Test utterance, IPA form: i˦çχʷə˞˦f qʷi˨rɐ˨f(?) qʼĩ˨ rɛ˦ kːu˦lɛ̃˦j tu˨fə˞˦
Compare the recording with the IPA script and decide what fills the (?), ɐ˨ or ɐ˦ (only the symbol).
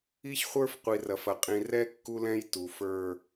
ɐ˨